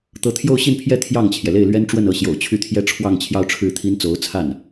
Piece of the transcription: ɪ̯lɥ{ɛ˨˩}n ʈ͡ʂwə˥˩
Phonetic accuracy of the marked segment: incorrect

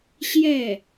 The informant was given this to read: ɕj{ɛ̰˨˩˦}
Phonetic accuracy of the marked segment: incorrect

